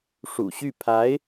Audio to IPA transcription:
ʂṵ˨˩ɕy˥˩ pʰa˧˥ɪ̯

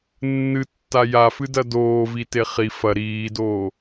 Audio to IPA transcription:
nːɨtːa jafɨdɐ doːvite χi fɐ ɾiːdoː

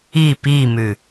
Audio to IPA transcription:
i pimʉ

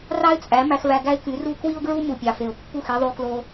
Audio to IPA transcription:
rɑ˦ɪ̯t͡sʼæ˨˦ mæ˧xvæ˧ɡæ˦ɪ̯ky˨˦ ru˦ kwi˦ʊ̯ɡɹu˦ mu˨pʲɑ˨fe˨ʊ̯pːu˦˨x i˧ðˤu˧klo˧

